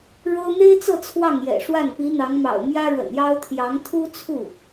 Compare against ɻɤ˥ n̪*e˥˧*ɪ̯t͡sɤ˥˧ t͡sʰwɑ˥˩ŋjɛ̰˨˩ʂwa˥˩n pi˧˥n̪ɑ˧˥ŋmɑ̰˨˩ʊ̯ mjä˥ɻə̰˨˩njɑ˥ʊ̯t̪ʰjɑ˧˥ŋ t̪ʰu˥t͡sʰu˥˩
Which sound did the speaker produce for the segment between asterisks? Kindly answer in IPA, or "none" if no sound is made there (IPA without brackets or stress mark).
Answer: e˥